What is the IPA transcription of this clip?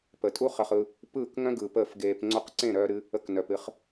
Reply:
p ə˨ tʼ u˦ χ ə˧ χ ɯ˧ | p ɯː˦˨ k ŋ œ̃˦ ɡ ɯ˨ p əː˦˨ f ɡ eː˧ p ŋ͡ǀ o˦ q ǀ ẽ˦˨ ɾ œː˧ ɾ ɨ˧ | ə˧ k n œ˨ p ɨ˧ χ

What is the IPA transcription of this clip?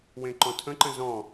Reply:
w ẽ ǃ ɔ̃ tʰ ə̃ ǃ ə̃ z ɔ̃

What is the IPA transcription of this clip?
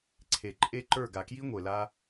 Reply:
ǀʰ e˨ ǃʼ e˦ ǃ ə˞˦˨ ɡ a˨ k j i˦ ŋʷ e˨ l a˦

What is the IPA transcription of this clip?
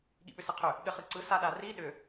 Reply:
ɠ ḭ ɓ ʏ s ɯ qʰ ʏ | ɠ ɘ χ ɯ ǀ ɯ s a ɗ a r i ɗ ʏ

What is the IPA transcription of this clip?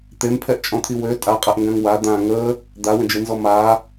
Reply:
t̪ e m pʰ ɛ ʔ t͡ʃʼ ɔ̃ t̪ʰ i w ø tʼ a qʼ ɛ ʔ ŋ ɡ ã ŋ w a d̪ ã ŋ ə | d̪ a w ə̃ d͡ʒ e n z ɔ m a

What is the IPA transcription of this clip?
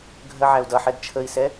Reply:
ɡʱ ɜ ʕ æ u̯ d ʌ ħ ɛ d t͡ʃʰ ə i̯ s ɛ

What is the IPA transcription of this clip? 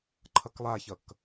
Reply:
ǃʰ ʌ k lˠ a ç ʌ k

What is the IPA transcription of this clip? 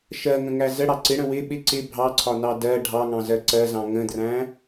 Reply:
ʃ ɜ ŋ ə̃ ŋ æ z ə ɽ ɑ ǀ ɪ ɽ ə̃ w ɪ ɓ ɪ ǀ ɪ bʱ ɑ ǀʰ ɒ n ɑ d ɜ ɖʱ ɑ ŋ ɑ̃ z ɜ ǀ ɜ z ɑ̃ ŋ ə̃ d r æ̃

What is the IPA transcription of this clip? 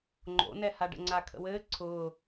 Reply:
ŋ͡ǃ o̰ n ɛ h a ɖ ə̰ ŋ͡ǀ a kʰ ə̰ w ɘː ǀʰ ʊː

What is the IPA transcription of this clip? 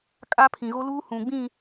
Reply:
kʼ a˦ pʰ ĩ˨ ɣ o˦ l uː˦ h ũ˨ ɡ͡b ĩ˦˨

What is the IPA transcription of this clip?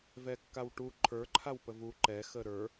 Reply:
v ɛ kː a w ʈ u ǃʰ ə˞ ǃʰ a w p ə v u ǃ ɛ x ə ɾ ə˞

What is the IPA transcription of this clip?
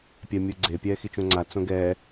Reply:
pʲ ɛ mʲ ɯ ɡ͡ǀ e pʲ ɛː x i t͡ʃ õ ŋ͡ǀ a t͡s õ ɡ ɛː

